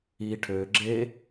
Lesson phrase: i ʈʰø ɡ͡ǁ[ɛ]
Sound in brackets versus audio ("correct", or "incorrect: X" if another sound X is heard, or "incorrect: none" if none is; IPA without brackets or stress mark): incorrect: e